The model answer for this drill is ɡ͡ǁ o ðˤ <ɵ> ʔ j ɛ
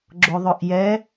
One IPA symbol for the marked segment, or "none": ɵ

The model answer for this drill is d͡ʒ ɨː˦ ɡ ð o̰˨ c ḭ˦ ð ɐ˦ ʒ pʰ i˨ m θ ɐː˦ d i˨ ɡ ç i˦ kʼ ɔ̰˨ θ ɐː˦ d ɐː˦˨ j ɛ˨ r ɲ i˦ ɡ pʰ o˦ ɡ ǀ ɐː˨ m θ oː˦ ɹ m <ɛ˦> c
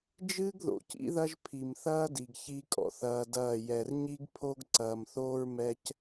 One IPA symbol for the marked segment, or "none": ɛ˦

